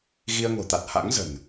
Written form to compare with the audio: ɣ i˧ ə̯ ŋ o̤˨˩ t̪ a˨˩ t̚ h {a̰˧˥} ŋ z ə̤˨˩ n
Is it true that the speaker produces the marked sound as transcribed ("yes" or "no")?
yes